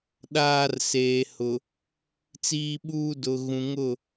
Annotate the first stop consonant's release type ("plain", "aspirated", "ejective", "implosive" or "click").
implosive